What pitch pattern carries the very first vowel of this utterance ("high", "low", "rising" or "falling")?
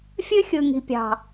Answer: high